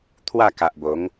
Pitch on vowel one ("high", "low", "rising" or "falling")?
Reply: falling